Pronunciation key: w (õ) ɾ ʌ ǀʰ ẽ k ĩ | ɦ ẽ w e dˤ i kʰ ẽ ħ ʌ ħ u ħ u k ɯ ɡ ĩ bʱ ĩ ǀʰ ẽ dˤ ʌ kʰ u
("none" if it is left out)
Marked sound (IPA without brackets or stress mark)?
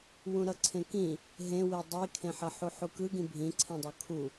ũ